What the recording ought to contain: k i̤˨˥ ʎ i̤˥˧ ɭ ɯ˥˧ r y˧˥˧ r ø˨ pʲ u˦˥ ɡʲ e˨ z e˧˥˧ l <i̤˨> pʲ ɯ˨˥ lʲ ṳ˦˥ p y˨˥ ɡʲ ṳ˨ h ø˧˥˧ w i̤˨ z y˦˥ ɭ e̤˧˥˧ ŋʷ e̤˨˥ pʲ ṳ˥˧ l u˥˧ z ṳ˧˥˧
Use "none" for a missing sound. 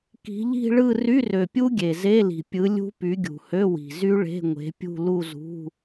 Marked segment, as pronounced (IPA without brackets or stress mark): i̤˨